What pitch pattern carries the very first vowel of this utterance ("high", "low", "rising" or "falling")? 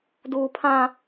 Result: high